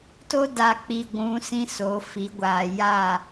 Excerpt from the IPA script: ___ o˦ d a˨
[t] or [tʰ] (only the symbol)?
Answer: t